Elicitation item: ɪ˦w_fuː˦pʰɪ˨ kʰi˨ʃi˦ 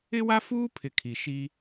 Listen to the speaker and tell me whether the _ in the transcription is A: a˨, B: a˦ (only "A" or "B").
B